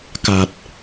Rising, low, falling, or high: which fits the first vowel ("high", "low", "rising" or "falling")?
low